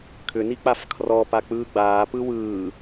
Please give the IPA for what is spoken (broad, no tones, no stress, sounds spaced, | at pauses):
kʰ ʏ n i k͡p a f kʰ r ɔ p a k͡p ɯː ɡ͡b aː p ɯ w ɯː